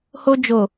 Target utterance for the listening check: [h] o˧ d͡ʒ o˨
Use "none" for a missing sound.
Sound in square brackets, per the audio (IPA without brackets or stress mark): h